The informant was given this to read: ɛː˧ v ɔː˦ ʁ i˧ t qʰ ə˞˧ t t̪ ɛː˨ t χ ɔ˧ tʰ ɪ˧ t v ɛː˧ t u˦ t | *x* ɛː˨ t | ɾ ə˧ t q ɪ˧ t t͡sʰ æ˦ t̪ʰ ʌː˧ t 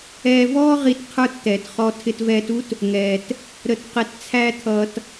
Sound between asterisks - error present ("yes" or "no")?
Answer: yes